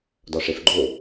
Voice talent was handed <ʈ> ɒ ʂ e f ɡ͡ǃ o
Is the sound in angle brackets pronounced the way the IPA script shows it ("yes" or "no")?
no